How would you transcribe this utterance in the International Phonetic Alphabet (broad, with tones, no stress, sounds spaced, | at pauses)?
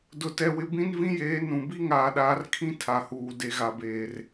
d ʊ˨ t ɛ˨ w ɪ˨ b ĩ˦ n v ĩ˦ j eː˨˦ n ũ˨ b i˦ ŋ aː˨ ɗ aː˨ r kʰ ĩ˦ tʰ a˨ h uː˨ d e˨ ɣ a˨ b eː˨ r